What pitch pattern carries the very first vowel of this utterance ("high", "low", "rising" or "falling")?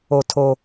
high